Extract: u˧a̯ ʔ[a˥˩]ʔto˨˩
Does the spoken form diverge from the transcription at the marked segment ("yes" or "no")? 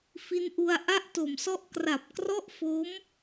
no